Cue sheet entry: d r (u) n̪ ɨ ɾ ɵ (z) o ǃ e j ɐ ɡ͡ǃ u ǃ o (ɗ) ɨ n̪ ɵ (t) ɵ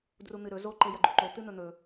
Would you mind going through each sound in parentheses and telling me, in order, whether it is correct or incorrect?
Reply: correct, correct, incorrect: t̪, incorrect: n̪

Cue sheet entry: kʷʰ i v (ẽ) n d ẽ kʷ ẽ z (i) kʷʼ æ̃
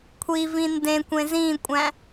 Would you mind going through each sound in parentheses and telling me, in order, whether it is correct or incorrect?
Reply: incorrect: ĩ, incorrect: ĩ

